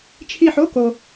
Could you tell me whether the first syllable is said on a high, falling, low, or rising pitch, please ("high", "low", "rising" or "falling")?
falling